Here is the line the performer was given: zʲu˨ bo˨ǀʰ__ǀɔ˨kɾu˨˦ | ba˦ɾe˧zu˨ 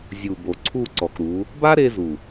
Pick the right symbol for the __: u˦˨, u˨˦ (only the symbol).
u˦˨